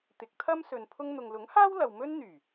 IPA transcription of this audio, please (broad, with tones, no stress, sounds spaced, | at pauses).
t̪ ɪ˨˥ k̚ t̪ʰ ɐ˥ m s ɵ˨ n pʰ ʊ˧ ŋ n̪ ʊ˨ ŋ l ʊ˨˥ ŋ h aː˥ w l ɐ˨ w m ɵ˥ n n̪ yː˨˩